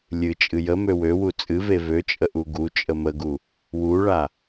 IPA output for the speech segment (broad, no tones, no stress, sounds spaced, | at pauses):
lʲ ɨ t͡ʃʼ ɨ j ə m ø w ø w u t͡sʼ ɨ v e v ø t͡ʃʼ ə ʔ u ɡ u t͡ʃʼ ə m ə ɡ u | w u ɭ a